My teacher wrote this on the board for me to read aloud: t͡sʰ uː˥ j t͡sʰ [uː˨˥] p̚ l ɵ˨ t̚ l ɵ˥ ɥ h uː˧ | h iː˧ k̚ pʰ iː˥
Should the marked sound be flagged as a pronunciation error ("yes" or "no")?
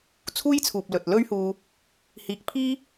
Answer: yes